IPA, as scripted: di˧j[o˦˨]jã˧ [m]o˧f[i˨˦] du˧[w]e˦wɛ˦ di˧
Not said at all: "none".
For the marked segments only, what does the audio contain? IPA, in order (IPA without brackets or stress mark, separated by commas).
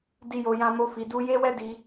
o˨, m, i˨, j